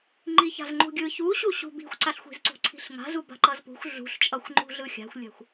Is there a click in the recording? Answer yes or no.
yes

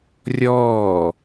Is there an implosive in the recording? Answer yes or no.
no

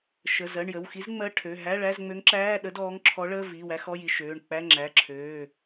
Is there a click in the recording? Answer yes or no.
yes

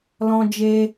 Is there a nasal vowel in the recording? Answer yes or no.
yes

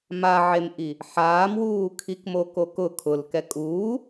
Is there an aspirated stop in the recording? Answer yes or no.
yes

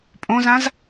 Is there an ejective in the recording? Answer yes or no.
yes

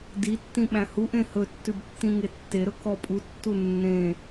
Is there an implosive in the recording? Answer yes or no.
yes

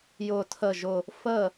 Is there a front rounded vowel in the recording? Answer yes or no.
no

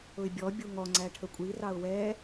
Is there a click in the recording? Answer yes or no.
yes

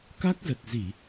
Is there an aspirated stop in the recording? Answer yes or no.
no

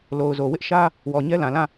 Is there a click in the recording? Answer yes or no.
no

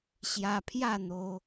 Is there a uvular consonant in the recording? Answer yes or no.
no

